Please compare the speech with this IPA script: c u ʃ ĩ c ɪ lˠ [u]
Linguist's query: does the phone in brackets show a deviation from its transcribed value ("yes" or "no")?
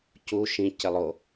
yes